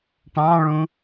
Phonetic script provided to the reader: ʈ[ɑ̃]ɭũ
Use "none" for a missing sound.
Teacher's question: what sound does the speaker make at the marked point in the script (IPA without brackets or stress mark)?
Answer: ɑ̃